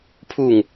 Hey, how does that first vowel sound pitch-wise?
falling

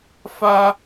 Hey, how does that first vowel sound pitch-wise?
high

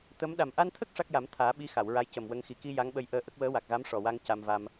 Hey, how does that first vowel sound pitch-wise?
rising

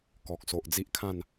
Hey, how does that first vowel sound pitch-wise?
low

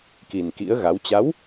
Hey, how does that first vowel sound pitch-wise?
low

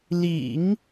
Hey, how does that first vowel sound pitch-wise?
low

